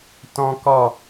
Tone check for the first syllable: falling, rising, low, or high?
high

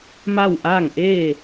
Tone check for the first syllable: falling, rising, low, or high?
falling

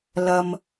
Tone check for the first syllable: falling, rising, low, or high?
low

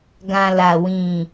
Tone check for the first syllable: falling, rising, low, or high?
low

